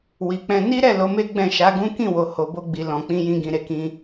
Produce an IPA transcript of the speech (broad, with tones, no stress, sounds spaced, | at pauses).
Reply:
w i˨ k͡p ɛ̃˧ n i˦ ɾ ɛ˦˨ l o˨˦ m e˦ ɡ͡b ɛ̃˦˨ ʃ a˨˦ ɡ ũ˦ k ĩ˦˨ w o˨ h o˨ b o˧ ɡ͡b i˨ l ɔ̃˨ k͡p ĩ˧ j ĩ˧ ɡ ĩ˨ ɾ e˨˦ k ĩ˧